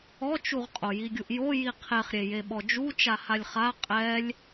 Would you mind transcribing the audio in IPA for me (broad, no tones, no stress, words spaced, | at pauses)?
ɔt͡ʃuʁqʼo jiɡʲuʔjo jiqʰeχɾʲe jeɓɔd͡ʒu t͡ʃahalʲχa qʼɛlʲ